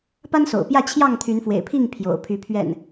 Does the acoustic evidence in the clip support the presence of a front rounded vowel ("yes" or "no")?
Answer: yes